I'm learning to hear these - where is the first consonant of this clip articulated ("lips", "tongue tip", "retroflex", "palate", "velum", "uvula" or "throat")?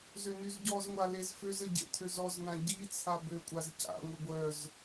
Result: tongue tip